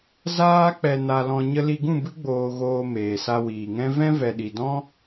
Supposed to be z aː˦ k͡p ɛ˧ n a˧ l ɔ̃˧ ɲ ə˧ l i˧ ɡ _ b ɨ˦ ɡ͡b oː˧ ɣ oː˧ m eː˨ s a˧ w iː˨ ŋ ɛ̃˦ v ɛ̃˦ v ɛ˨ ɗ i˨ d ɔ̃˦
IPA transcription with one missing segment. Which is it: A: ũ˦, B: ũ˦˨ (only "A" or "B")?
B